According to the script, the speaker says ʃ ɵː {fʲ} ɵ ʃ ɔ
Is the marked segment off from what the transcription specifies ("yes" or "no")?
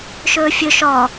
no